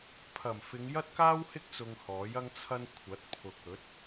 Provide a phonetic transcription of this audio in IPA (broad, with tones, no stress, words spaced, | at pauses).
pʰɐ˨˩mfɪ˨˧ŋ jɐ˥t̚kaː˥whɪ˥k̚ t͡sʊ˧ŋhɔː˨˥jɐ˥ŋt͡sʰɐ˥n kʷʰɐ˨˥t̚pʰʊ˨k̚ ɵ˨˥t̚